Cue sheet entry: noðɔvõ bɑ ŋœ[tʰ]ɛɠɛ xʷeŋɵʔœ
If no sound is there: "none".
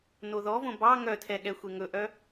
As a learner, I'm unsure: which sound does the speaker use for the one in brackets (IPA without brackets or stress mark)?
tʰ